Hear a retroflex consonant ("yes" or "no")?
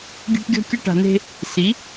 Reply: yes